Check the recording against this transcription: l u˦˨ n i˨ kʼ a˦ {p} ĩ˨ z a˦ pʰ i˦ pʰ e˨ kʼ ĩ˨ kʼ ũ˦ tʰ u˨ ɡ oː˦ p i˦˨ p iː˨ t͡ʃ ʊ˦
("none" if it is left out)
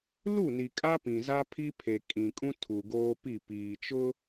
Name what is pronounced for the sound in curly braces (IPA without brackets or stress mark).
p